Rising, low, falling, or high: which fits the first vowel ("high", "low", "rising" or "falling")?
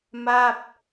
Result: falling